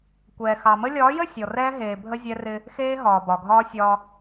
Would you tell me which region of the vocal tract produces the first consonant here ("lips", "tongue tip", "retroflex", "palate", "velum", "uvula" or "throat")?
velum